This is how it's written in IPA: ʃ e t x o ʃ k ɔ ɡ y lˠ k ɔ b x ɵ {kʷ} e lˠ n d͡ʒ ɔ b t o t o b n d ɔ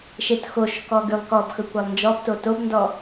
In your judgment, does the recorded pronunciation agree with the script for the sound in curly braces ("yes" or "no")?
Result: yes